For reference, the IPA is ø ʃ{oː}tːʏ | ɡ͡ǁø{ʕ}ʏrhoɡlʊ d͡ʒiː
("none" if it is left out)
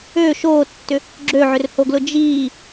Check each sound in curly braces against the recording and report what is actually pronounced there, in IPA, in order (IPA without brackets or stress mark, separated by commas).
oː, ʕ